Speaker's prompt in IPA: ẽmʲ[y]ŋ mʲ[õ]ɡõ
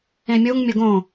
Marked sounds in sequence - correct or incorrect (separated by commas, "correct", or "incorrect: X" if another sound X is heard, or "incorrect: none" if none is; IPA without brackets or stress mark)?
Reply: incorrect: u, incorrect: o